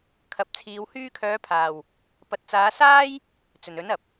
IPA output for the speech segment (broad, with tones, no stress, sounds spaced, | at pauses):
kʰ ɐ˨˥ p̚ t͡sʰ iː˨˧ w h yː˧ kʰ œː˨˧ pʰ aː˨˩ w | p ɐ˨ t̚ t͡s aː˨˧ s aː˥ j | t͡s ɵ˨˩ n ɵ˨˥ n ɐ˨ p̚